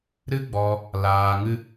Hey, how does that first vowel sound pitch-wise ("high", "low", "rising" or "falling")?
high